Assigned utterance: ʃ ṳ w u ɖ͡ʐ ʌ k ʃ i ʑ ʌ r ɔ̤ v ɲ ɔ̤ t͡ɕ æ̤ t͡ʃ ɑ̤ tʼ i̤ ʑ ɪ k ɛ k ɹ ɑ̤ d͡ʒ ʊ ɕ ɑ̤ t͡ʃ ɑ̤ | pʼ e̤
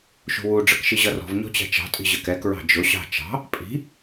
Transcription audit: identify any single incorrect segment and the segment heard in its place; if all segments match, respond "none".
e̤ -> i̤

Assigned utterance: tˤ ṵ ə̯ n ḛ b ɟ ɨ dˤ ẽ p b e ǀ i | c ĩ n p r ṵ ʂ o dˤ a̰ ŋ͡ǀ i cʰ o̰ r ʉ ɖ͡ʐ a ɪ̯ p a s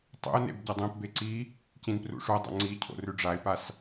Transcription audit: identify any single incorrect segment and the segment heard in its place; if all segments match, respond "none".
none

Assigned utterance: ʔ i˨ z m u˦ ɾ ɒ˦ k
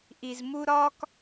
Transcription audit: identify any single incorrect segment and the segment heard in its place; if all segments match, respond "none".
none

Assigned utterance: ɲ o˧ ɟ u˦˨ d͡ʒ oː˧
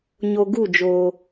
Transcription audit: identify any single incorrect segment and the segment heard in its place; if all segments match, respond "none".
ɟ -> ɡ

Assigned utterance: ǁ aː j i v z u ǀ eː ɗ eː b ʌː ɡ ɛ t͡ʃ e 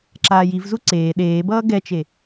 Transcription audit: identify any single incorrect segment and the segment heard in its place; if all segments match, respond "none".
none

